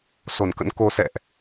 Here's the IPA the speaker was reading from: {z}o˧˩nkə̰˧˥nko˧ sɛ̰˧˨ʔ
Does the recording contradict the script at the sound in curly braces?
yes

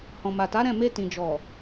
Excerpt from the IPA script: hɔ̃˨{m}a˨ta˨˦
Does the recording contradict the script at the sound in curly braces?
no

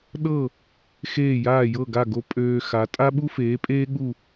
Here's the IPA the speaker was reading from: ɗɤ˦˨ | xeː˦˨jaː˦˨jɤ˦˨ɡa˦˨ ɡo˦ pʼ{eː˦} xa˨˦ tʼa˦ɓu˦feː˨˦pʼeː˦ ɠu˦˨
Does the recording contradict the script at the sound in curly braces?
yes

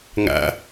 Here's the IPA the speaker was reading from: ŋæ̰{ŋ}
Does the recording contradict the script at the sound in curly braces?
yes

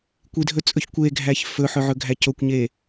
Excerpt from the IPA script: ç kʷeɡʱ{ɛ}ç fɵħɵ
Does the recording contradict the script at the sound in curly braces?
yes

